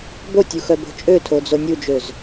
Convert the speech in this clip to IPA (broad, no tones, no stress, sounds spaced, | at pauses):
b o tʲ u x œ b o̤ t͡ʃʼ ø tʰ o d͡z o nʲ u d͡ʒ ø z